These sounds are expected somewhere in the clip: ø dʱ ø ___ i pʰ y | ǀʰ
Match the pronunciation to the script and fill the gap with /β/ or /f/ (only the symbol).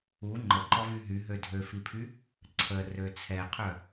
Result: f